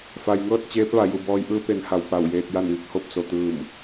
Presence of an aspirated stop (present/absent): absent